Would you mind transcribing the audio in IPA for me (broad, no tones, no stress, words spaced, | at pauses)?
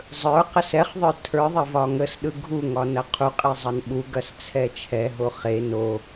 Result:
zˤə˞ qəsɛχðˤə˞ tʰə˞ðˤɐ vɒŋəsɗɯ ɡʱuŋɒ nɐqʰuqʼe zˤɐnɓuɡɐs t͡sʰɛt͡ʃʰɛɦo χe no